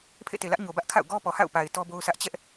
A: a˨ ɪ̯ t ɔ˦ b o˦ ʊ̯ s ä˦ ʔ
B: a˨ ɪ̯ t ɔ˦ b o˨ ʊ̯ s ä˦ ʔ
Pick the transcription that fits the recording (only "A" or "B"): A